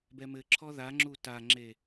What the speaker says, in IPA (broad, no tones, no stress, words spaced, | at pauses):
bɛmɘǁʰɔ ðaŋ͡ǁu taŋ͡ǁe